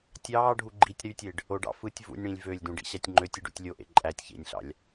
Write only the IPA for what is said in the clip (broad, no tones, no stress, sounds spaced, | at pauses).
tʲ ɑː ɖʱ u ɡ͡ǃ i tʲ ɾ y tʲ e ɖ | o ɖ ɑ̰ f ɯ tʲ v ṵ nʲ ɽ ĩ lʲ v ø lʲ d ũ ɖ ḭ ɕ æ tʲ ŋ͡ǃ ø tʲ i ɖ ṵ tʲ lʲ o ʔ ḛ ǃʼ æ tʲ ç ḛ nʲ ɬ ɑ̰ lʲ